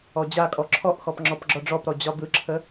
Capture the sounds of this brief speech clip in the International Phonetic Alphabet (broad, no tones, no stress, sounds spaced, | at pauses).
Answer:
ɔ d͡ʑ a kʼ ɔ ǁʰ ɔ ʔ x ɔ p ŋ͡ǁ ɔ p ɡ͡ǁ ɒ ɖ͡ʐ ɔ p ɾ ɔ d͡ʑ ɒ b ɯ ǁʰ ə